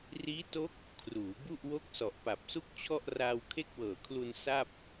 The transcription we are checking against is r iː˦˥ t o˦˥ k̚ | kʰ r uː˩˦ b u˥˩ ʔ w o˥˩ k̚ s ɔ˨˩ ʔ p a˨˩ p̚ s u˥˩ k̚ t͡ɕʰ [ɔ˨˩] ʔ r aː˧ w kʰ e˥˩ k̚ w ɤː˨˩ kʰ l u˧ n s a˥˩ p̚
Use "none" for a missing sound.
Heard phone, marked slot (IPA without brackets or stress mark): ɔ˥˩